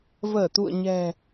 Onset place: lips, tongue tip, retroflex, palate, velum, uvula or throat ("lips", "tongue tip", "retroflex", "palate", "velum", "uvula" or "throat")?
lips